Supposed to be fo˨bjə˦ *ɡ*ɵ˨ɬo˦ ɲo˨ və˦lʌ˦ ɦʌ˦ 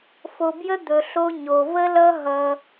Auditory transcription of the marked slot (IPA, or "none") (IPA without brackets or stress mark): d̪